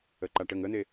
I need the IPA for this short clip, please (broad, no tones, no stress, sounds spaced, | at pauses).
ə ǃ a ʈ ə ŋ ə n̪ e